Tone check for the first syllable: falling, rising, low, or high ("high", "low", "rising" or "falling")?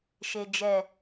low